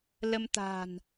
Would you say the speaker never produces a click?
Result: yes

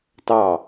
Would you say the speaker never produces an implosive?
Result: yes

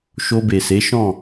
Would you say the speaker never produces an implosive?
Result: yes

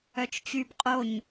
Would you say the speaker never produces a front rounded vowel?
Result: no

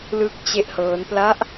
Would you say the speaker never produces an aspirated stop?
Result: yes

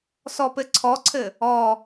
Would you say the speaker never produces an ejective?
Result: yes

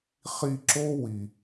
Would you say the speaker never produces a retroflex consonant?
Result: yes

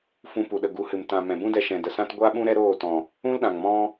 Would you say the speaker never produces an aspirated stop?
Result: yes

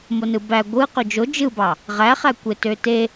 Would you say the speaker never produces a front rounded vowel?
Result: no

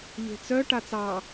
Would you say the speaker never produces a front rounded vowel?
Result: no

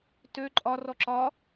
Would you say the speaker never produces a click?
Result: no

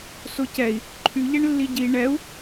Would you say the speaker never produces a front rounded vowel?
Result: no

